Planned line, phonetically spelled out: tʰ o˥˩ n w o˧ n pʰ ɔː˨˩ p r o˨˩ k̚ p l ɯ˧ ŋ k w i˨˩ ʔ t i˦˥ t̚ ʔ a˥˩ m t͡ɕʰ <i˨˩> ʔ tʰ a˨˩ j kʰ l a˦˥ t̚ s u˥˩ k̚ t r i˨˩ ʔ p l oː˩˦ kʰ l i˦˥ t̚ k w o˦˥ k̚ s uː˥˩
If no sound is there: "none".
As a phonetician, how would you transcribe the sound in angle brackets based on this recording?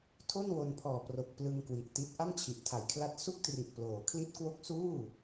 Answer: i˨˩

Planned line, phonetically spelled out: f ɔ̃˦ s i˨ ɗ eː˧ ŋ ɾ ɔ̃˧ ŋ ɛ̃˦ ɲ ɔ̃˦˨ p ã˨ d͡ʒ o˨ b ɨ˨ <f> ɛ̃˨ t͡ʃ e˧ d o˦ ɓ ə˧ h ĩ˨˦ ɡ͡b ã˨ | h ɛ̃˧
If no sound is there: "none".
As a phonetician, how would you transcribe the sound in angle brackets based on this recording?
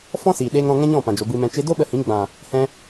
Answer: m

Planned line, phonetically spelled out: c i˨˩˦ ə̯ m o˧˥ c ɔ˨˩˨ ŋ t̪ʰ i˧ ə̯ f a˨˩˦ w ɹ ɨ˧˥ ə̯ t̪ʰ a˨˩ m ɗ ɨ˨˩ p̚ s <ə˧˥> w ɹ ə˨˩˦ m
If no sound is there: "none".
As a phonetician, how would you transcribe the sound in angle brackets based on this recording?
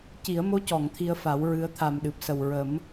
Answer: ə˨˩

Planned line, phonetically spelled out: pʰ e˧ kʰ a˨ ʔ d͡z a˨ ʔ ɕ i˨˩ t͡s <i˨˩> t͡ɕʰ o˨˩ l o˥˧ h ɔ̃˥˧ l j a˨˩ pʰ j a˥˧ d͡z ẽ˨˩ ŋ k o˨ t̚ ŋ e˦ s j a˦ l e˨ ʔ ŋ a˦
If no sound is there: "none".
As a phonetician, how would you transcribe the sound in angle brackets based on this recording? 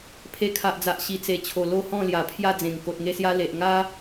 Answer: e˨˩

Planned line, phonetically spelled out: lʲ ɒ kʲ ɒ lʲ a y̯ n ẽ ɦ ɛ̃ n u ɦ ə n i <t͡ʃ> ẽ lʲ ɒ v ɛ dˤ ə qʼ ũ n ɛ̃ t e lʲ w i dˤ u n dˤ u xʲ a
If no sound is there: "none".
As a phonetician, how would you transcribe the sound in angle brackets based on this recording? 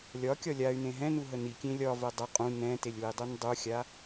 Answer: kʲ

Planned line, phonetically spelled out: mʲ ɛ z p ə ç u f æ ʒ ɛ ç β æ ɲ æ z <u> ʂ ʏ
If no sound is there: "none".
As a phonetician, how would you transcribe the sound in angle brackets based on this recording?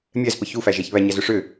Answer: ʏ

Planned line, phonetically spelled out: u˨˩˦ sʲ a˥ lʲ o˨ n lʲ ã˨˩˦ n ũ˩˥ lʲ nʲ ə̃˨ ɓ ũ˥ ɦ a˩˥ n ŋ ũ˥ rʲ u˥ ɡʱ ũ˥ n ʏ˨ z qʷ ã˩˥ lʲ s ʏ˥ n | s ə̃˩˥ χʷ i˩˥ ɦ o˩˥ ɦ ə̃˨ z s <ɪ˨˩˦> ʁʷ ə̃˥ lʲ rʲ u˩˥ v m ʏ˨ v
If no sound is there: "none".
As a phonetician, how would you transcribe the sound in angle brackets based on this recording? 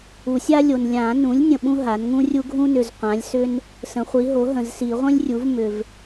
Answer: i˨˩˦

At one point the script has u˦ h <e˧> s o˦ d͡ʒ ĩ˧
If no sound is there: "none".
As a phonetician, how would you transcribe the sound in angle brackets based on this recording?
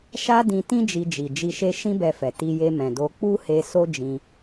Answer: e˧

